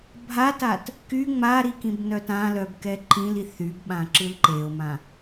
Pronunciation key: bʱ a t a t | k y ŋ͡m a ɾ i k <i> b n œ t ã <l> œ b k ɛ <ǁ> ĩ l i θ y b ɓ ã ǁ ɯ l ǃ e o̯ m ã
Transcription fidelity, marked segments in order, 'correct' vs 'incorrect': incorrect, correct, incorrect

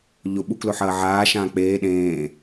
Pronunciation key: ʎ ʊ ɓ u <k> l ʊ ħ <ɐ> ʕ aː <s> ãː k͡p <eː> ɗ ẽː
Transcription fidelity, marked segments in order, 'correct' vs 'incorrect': correct, incorrect, incorrect, correct

